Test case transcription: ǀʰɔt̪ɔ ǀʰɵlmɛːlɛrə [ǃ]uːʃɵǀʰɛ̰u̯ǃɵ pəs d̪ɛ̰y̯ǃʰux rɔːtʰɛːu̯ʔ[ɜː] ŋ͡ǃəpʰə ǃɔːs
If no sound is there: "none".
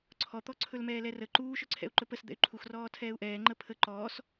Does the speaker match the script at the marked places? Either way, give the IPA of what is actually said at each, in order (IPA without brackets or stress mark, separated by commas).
ǃ, ɛː